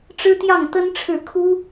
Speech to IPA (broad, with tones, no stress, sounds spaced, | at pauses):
ʈ͡ʂ ɻ̩˥ t̪ j ɑ˥˩ ŋ t̪ ə˥ n ʈ͡ʂʰ ɻ̩˥˩ kʰ u˥